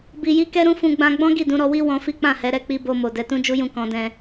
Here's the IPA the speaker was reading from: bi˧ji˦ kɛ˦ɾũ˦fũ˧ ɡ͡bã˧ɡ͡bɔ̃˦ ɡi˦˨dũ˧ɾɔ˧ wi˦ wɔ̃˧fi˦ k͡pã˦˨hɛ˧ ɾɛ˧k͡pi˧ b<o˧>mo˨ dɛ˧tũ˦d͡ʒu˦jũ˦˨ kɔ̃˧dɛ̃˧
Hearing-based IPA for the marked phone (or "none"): o˧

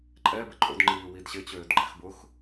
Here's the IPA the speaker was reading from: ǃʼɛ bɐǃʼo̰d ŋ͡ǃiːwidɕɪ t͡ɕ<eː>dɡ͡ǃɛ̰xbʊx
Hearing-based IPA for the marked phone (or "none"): øː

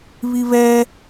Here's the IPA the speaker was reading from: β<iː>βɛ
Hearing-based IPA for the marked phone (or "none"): i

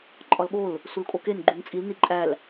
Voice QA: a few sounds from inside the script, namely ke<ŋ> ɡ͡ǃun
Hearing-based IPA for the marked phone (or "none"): n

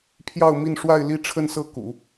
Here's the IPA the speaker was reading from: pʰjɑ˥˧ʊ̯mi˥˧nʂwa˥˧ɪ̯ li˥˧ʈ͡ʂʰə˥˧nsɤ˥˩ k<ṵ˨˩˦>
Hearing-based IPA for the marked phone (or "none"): ṵ˨˩˦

